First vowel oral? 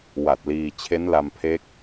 yes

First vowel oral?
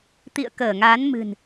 yes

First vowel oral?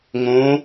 no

